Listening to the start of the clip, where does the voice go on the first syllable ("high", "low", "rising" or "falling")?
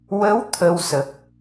rising